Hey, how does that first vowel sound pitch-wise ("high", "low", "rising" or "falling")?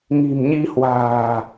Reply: low